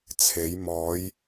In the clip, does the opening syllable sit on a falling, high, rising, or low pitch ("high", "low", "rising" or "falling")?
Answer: rising